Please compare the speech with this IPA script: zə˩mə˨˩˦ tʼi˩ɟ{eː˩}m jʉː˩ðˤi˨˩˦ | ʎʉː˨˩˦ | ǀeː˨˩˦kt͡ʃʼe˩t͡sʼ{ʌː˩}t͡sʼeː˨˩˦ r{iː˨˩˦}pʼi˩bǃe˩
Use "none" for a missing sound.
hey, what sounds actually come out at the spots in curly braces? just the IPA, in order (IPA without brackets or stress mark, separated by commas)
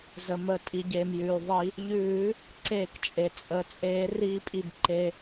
eː˩, əː˩, iː˨˩˦